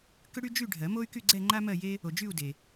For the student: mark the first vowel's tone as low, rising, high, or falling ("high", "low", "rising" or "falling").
high